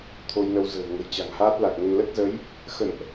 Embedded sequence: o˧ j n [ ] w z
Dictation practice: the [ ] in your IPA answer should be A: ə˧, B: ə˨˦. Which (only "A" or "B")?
A